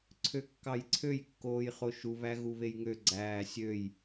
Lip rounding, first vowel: rounded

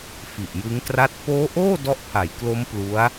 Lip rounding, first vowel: unrounded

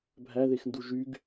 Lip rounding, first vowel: unrounded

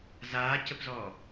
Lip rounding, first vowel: unrounded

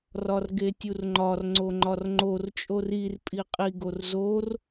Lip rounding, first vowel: rounded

